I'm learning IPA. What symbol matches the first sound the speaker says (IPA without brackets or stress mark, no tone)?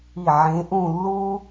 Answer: i